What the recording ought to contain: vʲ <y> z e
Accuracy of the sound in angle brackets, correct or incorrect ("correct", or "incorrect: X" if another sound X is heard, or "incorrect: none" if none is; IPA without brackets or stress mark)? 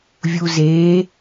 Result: incorrect: u